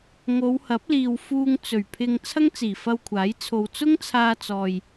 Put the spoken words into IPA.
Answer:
ŋ o˨˧ w h ɐ˨˥ p̚ l iː˨ w f uː˧ ŋ t͡s ɵ˨˩ ɥ pʰ ɪ˧ ŋ t͡sʰ ɐ˥ ŋ t͡s iː˨˩ f ɐ˧ w kʷʰ aː˨˥ j t͡sʰ o˨ w t͡s ʊ˥ ŋ t͡sʰ aː˧ t͡s ɔː˨ j

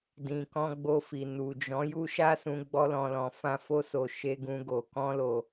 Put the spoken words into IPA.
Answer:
d ĩ˨ k ɔ̃˧ ɡ͡b o˧ f i˨ n u˨ d͡ʒ ɔ̃˨˦ j u˦ ʃ a˦ s ũ˧ ɡ͡b ɔ˦ l ɔ̃˧ l ɔ̃˧ f ã˦ f o˦ s o˧ ʃ e˦ ɡ ũ˦ ɡ o˧ k ɔ̃˦ l o˧

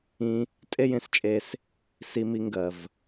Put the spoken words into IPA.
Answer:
ĩ˧ | tʼ e˦ j ẽ˧ s t͡ʃʼ e˧ s | s i˧ m i˧ ŋ ɡ ɜ˨ v

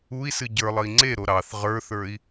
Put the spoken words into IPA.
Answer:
u i̯ s ɨ ɟ ə˞ lˠ ə i̯ ŋ͡ǀ e ɾ o ɾ ɑ θ ʁ ə˞ θ ə˞ i̯

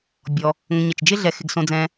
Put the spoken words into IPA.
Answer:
bʲ ɔ˩ | ŋ ə̃˨ ɲ ə˩ t͡ʃ d͡ʒ ɪ˥ ɮ ɛ˨ x ɪ˨ ɡ s õ˨ d͡z ɛ̃ː˨

